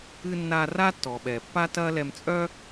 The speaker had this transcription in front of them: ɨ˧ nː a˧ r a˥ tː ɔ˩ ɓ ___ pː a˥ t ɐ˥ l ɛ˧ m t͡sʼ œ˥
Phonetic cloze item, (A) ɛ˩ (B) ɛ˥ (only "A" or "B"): A